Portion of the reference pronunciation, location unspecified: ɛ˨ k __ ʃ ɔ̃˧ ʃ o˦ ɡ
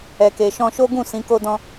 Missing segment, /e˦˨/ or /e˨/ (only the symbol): e˨